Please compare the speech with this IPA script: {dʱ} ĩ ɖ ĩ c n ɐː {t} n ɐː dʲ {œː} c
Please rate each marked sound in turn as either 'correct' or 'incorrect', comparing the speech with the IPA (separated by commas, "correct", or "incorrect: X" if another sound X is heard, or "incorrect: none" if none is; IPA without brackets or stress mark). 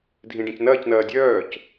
correct, incorrect: c, correct